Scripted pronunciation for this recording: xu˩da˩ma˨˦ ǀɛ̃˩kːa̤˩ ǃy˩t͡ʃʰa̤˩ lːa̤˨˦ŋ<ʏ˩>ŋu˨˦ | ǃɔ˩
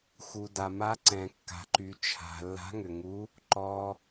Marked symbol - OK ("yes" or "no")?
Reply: yes